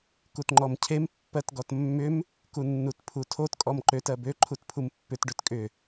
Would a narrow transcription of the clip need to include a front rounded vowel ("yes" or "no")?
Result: yes